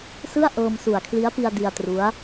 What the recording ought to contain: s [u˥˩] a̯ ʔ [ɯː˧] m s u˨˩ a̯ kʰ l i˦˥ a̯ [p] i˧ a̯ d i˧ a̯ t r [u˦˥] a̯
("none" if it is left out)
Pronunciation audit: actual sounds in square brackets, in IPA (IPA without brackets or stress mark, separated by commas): ɯ˥˩, ɤː˧, p, u˦˥